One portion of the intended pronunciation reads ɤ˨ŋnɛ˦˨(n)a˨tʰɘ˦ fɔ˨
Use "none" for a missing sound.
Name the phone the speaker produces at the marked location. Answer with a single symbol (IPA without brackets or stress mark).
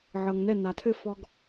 n